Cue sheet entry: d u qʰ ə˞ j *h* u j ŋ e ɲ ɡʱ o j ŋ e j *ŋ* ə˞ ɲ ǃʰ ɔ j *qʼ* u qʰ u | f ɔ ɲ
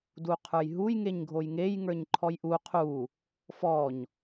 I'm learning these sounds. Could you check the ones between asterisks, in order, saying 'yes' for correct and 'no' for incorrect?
no, yes, no

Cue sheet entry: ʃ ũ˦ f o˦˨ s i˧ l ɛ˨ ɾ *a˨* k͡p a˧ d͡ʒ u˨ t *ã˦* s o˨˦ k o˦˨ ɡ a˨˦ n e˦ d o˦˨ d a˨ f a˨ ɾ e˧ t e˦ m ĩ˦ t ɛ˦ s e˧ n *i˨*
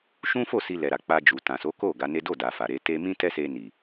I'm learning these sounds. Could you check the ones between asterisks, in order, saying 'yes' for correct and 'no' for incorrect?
yes, no, yes

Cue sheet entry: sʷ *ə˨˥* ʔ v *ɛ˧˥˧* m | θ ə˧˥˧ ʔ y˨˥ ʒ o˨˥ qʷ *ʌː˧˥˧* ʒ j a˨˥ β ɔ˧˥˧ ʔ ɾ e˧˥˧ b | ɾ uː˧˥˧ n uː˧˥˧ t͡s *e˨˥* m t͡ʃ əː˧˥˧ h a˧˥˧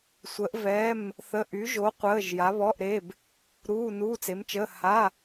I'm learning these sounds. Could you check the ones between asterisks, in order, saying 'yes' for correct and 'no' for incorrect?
yes, yes, no, yes

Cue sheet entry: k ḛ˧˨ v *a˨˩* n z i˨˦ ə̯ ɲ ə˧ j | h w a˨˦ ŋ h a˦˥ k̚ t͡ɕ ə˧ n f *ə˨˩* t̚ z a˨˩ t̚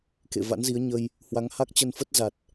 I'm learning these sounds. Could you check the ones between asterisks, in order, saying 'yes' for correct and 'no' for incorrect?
no, no

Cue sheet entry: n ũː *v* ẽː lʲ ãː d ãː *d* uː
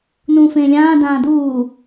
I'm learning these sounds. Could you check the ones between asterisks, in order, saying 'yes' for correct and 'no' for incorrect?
no, yes

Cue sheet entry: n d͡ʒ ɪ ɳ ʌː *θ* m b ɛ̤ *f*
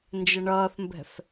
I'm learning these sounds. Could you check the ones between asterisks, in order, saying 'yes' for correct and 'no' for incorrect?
yes, yes

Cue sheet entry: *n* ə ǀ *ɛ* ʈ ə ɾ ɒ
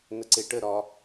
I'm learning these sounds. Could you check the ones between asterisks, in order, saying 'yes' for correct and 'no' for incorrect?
yes, no

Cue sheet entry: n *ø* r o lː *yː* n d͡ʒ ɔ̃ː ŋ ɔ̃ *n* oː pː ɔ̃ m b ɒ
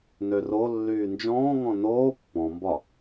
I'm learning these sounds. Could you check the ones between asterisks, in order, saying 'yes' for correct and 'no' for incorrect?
yes, yes, yes

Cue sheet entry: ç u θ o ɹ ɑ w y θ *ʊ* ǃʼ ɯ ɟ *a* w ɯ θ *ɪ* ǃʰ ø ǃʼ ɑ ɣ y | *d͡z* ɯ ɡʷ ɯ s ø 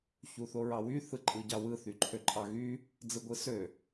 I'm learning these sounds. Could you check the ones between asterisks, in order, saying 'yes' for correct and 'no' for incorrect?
no, no, no, yes

